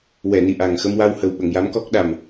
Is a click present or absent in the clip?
absent